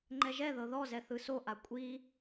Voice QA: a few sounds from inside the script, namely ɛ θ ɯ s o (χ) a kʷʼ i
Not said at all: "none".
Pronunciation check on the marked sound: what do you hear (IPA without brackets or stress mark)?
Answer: ʔ